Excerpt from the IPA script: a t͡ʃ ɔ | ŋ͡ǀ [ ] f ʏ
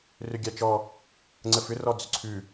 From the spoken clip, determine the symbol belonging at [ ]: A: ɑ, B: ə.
B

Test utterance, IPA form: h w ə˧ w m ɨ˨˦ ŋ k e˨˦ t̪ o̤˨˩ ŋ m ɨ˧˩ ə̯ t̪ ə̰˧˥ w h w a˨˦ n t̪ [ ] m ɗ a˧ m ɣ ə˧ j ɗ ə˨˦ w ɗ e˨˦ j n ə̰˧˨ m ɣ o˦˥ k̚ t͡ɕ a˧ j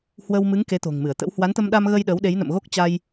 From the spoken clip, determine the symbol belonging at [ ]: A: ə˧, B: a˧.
A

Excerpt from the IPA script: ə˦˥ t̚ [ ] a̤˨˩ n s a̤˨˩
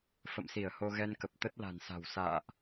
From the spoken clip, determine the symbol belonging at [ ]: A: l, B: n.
A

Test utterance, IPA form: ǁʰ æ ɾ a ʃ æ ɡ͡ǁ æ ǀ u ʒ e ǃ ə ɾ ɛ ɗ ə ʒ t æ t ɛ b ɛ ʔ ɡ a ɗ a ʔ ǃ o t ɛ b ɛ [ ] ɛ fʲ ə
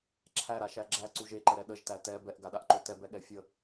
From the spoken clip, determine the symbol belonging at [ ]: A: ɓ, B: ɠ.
B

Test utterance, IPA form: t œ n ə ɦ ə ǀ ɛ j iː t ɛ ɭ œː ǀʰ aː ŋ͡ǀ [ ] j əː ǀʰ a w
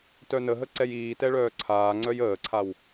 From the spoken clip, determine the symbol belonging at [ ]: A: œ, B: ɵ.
A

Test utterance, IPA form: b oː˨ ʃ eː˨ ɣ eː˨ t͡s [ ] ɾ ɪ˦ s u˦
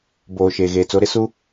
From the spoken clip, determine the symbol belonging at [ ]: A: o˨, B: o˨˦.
B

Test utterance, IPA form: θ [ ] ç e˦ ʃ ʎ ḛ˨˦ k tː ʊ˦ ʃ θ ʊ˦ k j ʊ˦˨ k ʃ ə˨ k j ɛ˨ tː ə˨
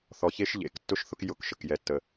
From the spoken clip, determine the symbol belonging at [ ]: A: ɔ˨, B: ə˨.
A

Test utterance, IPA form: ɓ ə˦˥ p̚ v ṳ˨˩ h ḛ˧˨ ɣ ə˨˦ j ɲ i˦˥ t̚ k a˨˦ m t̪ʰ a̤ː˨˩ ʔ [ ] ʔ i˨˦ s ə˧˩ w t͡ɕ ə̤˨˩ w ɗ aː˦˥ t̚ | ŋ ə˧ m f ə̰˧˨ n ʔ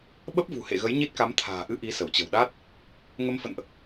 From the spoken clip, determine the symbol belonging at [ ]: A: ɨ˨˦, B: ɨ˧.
B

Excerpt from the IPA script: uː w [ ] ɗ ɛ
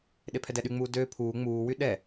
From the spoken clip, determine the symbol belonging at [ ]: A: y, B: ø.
A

